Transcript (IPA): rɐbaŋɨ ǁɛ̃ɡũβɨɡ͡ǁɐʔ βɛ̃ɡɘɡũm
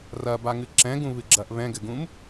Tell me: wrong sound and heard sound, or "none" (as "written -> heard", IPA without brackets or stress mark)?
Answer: none